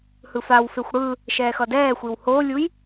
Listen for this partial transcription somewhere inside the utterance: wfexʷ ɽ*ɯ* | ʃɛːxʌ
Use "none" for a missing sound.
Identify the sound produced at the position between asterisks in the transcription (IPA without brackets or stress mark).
ɯ